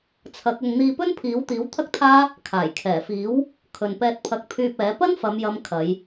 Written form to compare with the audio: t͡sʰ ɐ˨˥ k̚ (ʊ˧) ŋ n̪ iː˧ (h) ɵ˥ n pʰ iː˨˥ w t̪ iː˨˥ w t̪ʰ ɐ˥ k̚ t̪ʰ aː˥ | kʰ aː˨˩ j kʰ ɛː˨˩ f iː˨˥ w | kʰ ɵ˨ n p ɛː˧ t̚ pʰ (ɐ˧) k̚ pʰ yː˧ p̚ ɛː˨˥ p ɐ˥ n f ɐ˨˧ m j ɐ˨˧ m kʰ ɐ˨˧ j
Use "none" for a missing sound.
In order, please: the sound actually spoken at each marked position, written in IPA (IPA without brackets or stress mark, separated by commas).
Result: ʊ˧, p, ɐ˧